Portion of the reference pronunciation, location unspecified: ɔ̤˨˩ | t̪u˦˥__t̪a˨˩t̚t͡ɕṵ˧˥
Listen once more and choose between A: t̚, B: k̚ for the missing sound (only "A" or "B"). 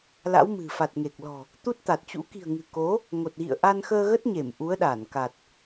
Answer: A